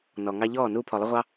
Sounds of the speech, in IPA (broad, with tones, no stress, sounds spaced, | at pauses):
n ɔ˨ ŋ ɑ˧ ʎ ɔː˦˨ n uː˧ pʰ ɔ˨ lˠ ə˧ ʁʷ ɑ˧